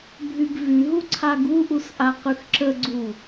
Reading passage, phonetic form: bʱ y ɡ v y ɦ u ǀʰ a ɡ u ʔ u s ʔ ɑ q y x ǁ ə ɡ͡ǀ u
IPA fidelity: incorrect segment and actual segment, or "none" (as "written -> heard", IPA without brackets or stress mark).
ɑ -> a